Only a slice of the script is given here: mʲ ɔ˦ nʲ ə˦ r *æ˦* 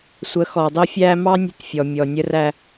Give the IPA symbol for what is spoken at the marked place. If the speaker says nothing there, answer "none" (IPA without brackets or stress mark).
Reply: æ˦